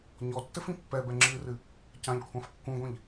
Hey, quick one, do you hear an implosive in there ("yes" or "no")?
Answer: no